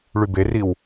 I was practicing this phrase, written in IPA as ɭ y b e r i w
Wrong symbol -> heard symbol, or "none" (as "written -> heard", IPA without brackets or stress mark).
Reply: none